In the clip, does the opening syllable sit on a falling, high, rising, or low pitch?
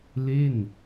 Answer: falling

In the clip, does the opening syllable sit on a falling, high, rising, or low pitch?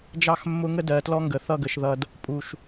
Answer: falling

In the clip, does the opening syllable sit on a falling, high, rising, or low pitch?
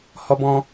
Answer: high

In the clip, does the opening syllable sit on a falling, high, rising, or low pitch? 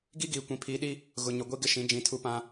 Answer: high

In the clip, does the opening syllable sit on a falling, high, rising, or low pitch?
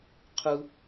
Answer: high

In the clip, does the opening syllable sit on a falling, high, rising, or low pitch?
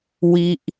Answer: high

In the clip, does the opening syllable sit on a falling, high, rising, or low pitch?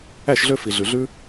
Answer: falling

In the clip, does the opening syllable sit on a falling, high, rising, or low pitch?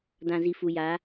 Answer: low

